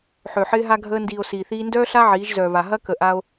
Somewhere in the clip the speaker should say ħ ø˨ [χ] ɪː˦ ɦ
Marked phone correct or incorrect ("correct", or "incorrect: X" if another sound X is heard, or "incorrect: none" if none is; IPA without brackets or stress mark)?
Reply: incorrect: ħ